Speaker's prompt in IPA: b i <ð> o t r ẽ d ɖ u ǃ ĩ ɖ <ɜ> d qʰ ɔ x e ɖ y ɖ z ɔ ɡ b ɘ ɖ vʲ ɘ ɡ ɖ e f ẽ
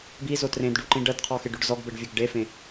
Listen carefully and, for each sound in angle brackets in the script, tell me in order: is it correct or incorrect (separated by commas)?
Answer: incorrect, correct